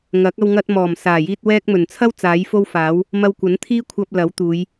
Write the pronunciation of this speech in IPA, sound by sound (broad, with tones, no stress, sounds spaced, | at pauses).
ŋ ɐ˨˥ k̚ ɐ˧ w ŋ ɐ˧ t̚ m ɔː˨˩ m s aː˨˩ j iː˧ t̚ w ɛː˥ k̚ m ɵ˨˩ n t͡sʰ ɐ˥ w t͡s aː˨˥ j f o˥ w f aː˨˥ w | m ɐ˧ w kʷ ɐ˨˥ n t̪ʰ iː˥ kʷʰ ɐ˧ p̚ l ɐ˨˥ w t̪ uː˨˧ j